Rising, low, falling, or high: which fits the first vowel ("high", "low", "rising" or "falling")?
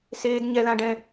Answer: high